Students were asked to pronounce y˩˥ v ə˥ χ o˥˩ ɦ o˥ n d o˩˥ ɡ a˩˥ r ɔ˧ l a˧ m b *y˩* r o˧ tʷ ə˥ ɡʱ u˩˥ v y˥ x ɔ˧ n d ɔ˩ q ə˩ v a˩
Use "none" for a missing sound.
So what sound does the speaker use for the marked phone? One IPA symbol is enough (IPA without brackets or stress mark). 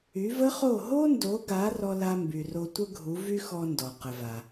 y˩